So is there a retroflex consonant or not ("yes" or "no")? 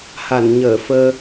no